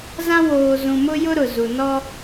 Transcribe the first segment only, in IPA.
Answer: z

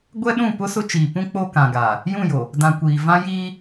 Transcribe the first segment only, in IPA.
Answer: ɡʷ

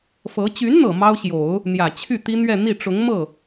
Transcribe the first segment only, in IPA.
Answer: f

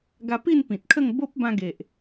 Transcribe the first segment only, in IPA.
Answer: ɡ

